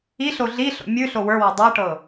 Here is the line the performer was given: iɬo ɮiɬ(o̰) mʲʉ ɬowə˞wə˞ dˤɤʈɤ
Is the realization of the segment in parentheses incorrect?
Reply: no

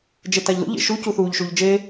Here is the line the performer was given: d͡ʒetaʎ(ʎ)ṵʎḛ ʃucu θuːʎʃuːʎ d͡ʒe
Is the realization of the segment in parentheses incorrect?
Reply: yes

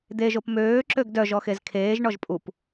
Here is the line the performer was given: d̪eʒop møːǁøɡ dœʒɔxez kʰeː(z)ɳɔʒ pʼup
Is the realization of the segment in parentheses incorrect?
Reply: yes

